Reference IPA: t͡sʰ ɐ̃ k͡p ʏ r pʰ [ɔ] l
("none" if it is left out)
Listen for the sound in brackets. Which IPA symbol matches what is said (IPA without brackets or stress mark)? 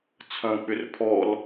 ɔ